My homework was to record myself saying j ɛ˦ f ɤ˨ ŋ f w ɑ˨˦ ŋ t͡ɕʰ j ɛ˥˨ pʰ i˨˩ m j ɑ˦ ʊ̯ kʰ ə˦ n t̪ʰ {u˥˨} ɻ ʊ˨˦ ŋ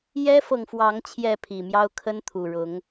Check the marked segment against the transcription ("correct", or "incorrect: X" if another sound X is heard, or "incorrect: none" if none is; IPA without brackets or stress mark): incorrect: u˨˩